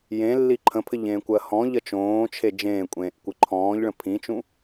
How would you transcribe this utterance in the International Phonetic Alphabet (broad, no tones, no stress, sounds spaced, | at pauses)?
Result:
j ẽ lː i ǃʰ ə̃ pʰ ɘ ʎ ẽː kʷ ɜ h ɔ̃ ʎ ɜ t͡ʃ õː t͡ʃʰ e d͡ʒ ẽː kʷʼ ẽː ʔ kʷ ɨ ǃʰ ɔ̃ː ʎ ɭ ə̃ pʰ ĩ t͡ʃ ũ